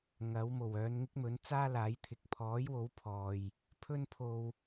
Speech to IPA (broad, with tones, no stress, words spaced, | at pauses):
ŋɐ˨˥wmo˨˩w œː˨˧nŋɪ˥k̚mɵ˨˥n t͡saː˥laː˨˥jt̪ʰɪ˨˥k̚ pʰɔː˨˥jwo˨˥wpʰɔː˨j | pʰɵ˥npʰo˧w